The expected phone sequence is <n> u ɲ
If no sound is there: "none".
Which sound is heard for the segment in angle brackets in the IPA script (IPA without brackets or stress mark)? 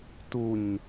t